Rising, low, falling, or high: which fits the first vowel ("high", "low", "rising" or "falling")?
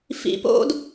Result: low